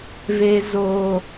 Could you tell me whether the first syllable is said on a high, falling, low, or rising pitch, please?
high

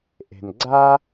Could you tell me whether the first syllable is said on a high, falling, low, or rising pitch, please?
low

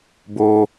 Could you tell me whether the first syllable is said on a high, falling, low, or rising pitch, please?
high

